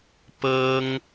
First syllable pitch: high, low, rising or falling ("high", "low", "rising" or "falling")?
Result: high